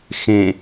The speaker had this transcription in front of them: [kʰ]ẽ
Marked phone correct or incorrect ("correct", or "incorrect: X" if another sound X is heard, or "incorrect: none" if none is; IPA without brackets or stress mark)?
incorrect: x